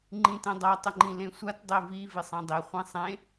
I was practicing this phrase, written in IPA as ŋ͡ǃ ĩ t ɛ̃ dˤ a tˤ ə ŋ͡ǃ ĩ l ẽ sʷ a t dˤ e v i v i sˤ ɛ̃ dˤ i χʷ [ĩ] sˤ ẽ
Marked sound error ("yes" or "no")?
yes